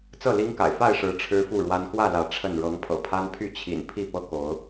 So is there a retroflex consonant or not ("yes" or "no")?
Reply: yes